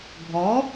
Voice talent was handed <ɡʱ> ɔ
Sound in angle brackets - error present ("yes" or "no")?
no